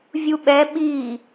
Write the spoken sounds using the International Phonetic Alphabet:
vʲuɓɛ ɓi

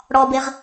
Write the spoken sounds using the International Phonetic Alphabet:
ɽɔbeʁ

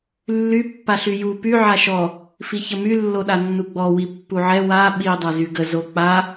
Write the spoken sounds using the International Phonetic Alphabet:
lːy pːaɬyju py ʕaʃɔ | fiçəmy lːoɗanːuɡ͡bɔ wipːuʕɛ wa ɓi dˤazyɡə zok͡pa

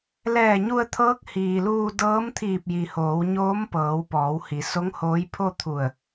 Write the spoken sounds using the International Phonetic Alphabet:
lɛː˧˩ɲu˧ə̯t̪ʰɤː˧˥k̚ hiː˩luː˧dɤː˧˥mt̪ʰiː˧˩p̚ ji˩hoː˩˧wɲoː˧˥mpɤː˩˧w pɔː˩˧w hi˩˧so˧˥ŋhoː˧˥j pʰo˥˨t̪ʰu˧˩ə̯

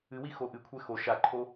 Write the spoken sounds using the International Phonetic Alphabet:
ɨwi xoʔɨkʷʰɛ xo ʃaǃʰo

